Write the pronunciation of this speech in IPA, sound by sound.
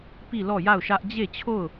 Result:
p i˦˨ l ɔ˦˨ j a˦˨ ʊ̯ ʃ ä˦ ʔ d͡ʑ e˦˨ t͡ɕʰ o˦˨ ʊ̯

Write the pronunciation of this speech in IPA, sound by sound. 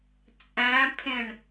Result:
t͡sʼ æ̃ pʰ ẽ ɳ

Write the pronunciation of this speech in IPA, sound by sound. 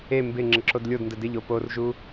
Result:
e m b ɪ ŋ͡ǁ ə ǁ o d lʲ o d n d ə d ɪ ʎ o p o r ʒ u

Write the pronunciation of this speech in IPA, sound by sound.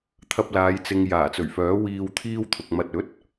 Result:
t̪ʰ ɐ˧ p̚ l aː˨˧ j t͡s ɪ˨ ŋ j aː˨˩ t͡s ɵ˨˩ ɥ f œː˨˥ w iː˧ w t̪ʰ iː˥ w t̪ʰ ʊ˨ k̚ m ɐ˨ t̚ ɵ˨˥ t̚

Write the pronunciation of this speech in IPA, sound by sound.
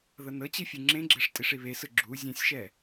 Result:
ð ɤ n ɤ t͡ɕ i fʲ ɯ ŋ͡ǁ ẽ ɡ͡ǁ e ʂ tʼ i ʂ i β e s ɯ ɡ͡ǁ u zʲ ẽ sʲ ʃ ɛ

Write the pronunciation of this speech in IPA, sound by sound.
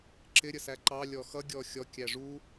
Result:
ǁ ɪ ɾʲ ə s æ ǃ ɑ lʲ ɔ x ʌ ɡʲ ɔ xʲ ɔ kʲ æ ʐ u

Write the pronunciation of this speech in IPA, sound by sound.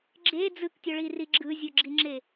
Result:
ɡ͡ǁ e d͡z ɯ k tʲ ɔ ɭ i r i ɡ͡ǁ ɯ zʲ o ɡ͡ǁ i ŋ͡ǁ e

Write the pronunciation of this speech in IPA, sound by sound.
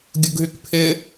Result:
ɡʲ ʊ ɡ ɦ y k pʰ ɪ

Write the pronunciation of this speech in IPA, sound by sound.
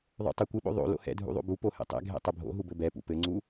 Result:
ðˤ o̰ tˤ ɘ kʷ ɘ ɓ o̰ ðˤ o̰ l o̰ h ɛ̰ dʱ ṵ ðˤ o̰ b u p o h ɛ̰ tˤ ɛ̰ ɡʱ ɛ̰ tˤ ɘ bʱ o̰ ɦ u b ɘ b ɛ p ṵ p ɘ ŋ͡ǀ u

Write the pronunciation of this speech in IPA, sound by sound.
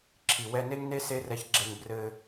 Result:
ǁʰ i˩ w ɛ˧ n e˥ ŋ n e˥ s e˥ r ɛ˧ ç ɡ͡ǁ e˧ ŋ b r ɘ˧

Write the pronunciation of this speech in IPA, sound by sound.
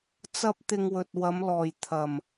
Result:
t͡s ɐ˥ p̚ t̪ ɪ˧ ŋ w ɵ˨ t̚ w ɐ˨˧ m l ɔː˨˩ j t̪ʰ ɐ˨˩ m

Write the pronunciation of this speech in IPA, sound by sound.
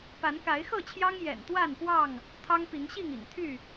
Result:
p a˨˦ n k a˨˦ ɪ̯ x ɤ˥˨ t͡ɕʰ j ɑ˦ ŋ j ɛ̰˨˩ n t̪ w a˥˨ n p w ɑ˥˨ ŋ | t̪ʰ ɑ˦ ŋ p i˨˦ ŋ ɕ i˥˨ ŋ ḭ˨˩ ŋ t̪ʰ y˥˨

